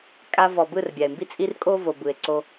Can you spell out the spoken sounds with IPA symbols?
kʼ a˧ v ɔ˨ b ɯ˦˨ r bʲ a˨ e̯ m b i˦ t͡sʼ i˦ r kʼ o˦ v o˨ b ɯ˨ e̯ ǀ o˧

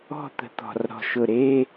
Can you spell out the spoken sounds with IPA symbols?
ɔ̤˥˨ t̪ ə̤˨˩ t̪ ɔ̤˨˩ r ɾ ɔ̤˨˩ ʃ ʊ˨˩ ɾ e˧˥˧

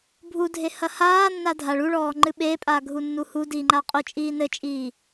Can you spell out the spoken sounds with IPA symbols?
bʱ u dʱ e h ɐ h aː nː a dʱ a ɭ u ɭ ɔː ŋ͡ǃ ɨ ɓ eː pʼ aː ɡʱ u nː u h u d iː ŋ͡ǃ a qʼ o t͡ʃʼ iː n ɘ t͡ʃʼ iː

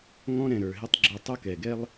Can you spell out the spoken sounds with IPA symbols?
ŋ ɔ̃˥ ɾ ɛ̃˩ ɾ ə˞˩ ɦ ɪ˥ tˤ ɡ͡ǁ u˧ tˤ ʊ˥ k ɛ˩ ɡ ɛ˥ lˠ

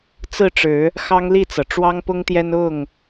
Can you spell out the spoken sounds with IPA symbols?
t͡s ɹ̩˥˨ ʈ͡ʂ ɻ̩˨˦ | x ɑ˦ ŋ l i˥˨ t͡s ɤ˩ ʈ͡ʂ w ɑ˦ ŋ p ʊ˦ ŋ t̪ j ɛ˦ n ʊ˥˨ ŋ

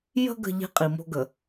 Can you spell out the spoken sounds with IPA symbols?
j ə̤˦ ɡ ə̤˦˨ ʎ i̤˦ qʼ i˨ m o̤˦ ɡ ə˨

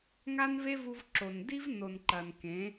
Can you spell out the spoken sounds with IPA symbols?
ŋ a˦ n v e˦ v u˧ v ǁ o˨ n d i˦ v n o˨ n ǃ ɐ˨ n k ẽ˨˦

